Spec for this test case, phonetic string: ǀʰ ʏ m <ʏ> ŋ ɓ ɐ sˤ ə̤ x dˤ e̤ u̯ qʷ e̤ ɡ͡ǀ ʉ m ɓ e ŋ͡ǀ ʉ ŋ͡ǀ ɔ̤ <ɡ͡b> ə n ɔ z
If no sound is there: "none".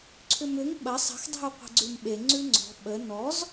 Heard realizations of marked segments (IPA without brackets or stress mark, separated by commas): ʏ, ɓ